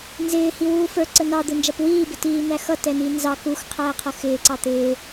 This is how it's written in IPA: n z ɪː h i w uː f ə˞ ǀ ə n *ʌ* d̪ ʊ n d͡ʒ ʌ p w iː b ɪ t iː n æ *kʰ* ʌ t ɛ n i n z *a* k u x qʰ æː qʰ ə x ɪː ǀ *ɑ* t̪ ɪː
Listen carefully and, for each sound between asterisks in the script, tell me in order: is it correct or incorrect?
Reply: incorrect, incorrect, incorrect, correct

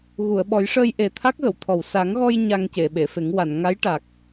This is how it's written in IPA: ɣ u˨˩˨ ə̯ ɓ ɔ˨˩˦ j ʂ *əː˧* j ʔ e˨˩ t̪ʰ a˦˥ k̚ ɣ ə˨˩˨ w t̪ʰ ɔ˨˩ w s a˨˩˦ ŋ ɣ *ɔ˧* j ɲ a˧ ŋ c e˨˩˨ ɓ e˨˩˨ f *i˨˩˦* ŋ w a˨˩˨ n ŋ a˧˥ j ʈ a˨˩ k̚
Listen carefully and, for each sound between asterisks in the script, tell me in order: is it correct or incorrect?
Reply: correct, correct, incorrect

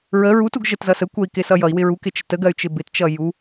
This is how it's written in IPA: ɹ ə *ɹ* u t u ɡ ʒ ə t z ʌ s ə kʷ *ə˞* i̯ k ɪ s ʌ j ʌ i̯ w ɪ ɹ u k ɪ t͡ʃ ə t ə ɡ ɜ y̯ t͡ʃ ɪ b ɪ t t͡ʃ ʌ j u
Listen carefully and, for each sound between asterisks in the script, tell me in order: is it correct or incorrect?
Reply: correct, incorrect

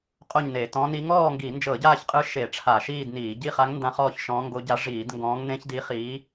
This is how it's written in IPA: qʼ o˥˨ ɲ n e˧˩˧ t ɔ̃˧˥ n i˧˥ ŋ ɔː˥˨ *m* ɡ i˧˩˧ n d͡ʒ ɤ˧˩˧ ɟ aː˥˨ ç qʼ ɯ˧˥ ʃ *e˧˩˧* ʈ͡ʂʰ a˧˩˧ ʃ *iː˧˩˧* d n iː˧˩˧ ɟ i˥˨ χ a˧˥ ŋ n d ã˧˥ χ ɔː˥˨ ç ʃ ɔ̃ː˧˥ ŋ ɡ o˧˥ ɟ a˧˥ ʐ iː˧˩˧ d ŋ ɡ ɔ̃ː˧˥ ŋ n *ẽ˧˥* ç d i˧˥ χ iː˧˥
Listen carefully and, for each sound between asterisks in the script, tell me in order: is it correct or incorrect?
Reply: incorrect, correct, incorrect, correct

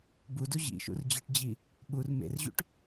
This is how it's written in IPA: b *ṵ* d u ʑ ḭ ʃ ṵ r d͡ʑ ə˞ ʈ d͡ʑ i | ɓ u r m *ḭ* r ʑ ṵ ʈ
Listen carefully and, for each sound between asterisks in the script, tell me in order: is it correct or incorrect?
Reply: incorrect, incorrect

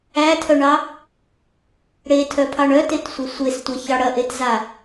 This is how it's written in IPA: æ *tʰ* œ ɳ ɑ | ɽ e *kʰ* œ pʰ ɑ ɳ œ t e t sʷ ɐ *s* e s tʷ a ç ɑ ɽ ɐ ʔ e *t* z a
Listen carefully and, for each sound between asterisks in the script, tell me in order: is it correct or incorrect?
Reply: correct, incorrect, incorrect, correct

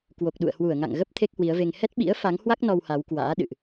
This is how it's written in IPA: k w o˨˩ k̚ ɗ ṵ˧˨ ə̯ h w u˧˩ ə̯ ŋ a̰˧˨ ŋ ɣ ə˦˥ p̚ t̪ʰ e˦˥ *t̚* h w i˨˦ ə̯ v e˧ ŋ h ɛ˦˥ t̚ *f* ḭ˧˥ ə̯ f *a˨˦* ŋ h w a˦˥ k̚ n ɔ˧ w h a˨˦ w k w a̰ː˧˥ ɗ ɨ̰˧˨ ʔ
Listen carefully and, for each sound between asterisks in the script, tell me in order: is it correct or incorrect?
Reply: incorrect, incorrect, correct

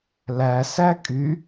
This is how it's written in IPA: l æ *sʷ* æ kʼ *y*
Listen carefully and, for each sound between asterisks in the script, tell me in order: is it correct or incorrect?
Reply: incorrect, correct

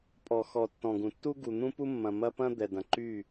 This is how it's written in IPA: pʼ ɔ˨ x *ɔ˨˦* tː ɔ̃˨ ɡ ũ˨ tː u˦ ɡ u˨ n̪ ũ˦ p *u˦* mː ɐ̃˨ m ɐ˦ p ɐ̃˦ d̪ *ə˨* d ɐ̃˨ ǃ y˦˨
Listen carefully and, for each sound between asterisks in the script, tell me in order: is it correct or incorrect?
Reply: incorrect, correct, incorrect

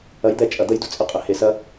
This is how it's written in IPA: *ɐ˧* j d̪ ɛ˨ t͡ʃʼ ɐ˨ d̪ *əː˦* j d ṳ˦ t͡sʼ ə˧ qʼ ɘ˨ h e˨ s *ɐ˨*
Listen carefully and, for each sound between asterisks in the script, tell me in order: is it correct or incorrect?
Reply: incorrect, incorrect, incorrect

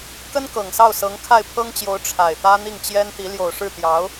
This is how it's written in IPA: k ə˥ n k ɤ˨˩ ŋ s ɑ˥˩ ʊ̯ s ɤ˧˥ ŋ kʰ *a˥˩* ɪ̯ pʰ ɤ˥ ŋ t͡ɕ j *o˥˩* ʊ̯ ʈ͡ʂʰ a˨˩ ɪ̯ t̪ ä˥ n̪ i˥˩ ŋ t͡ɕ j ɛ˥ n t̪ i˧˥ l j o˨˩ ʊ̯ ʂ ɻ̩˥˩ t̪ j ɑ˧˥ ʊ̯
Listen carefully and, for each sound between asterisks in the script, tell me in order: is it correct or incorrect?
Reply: correct, incorrect

